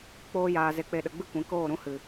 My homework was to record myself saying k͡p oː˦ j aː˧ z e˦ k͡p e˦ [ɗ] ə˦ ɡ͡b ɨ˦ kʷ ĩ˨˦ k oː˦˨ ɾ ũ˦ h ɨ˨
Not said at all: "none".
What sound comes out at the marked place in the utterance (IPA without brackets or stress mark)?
ɗ